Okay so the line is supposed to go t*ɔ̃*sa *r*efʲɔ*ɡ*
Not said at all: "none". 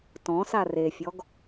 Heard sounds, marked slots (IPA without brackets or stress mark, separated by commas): ɔ̃, r, ɡ